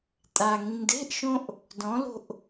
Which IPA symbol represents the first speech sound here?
tʼ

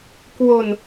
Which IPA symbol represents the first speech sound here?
k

